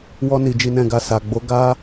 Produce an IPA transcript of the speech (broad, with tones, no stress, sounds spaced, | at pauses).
w ɔ˧ n i˨ d͡ʒ i˨ n ɛ̃˨ ɡ a˨ s a˨ ɡ͡b o˨˦ ɡ a˦